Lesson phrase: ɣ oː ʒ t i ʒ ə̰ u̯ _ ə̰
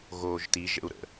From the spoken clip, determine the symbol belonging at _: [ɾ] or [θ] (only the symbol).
ɾ